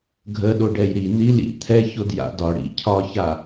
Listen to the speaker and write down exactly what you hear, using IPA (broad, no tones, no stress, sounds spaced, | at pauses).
ɡʱ ə ɗ o ɖ ɛ j ɾ i n i l ḭ t̪ʰ ɛ ç o d j a̰ d ɒ ɽ ḭ cʰ ɒ ç a